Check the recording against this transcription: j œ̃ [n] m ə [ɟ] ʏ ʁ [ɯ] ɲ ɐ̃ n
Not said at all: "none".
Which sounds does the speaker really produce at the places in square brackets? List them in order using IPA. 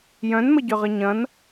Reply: n, ɟ, ə

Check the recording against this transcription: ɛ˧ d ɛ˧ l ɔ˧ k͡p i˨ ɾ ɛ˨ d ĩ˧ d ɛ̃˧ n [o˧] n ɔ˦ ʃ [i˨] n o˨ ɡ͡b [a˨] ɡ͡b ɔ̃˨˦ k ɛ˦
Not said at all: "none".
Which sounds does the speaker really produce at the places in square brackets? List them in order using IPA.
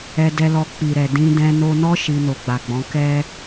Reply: o˧, i˧, a˨

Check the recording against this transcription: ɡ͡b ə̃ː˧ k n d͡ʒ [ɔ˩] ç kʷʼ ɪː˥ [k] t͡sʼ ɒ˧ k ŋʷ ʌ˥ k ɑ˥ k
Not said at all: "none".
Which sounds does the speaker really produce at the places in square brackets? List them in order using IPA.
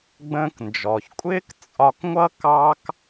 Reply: ɔ˩, k

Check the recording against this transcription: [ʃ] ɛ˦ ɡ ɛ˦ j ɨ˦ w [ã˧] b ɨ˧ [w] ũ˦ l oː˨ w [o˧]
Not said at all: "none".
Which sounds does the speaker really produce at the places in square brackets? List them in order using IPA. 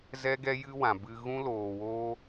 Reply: z, ã˨, ɣ, oː˧

